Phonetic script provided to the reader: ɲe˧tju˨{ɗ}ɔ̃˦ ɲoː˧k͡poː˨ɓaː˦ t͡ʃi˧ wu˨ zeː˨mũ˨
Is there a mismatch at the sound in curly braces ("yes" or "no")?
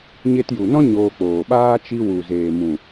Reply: yes